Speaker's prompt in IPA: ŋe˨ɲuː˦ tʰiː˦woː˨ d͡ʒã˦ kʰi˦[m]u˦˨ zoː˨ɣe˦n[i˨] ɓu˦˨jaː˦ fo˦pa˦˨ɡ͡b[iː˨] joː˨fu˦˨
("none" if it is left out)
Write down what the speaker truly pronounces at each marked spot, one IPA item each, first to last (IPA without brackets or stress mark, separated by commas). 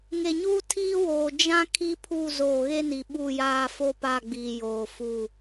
pʰ, i˨, iː˨